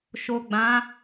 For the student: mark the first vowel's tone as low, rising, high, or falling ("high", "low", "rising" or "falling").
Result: low